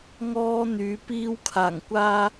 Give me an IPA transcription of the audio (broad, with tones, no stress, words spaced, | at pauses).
ŋɔː˧ n̪yː˨˧ piː˧wkʰaː˨˩ŋkʷaː˧